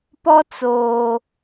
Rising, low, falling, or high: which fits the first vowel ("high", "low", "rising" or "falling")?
high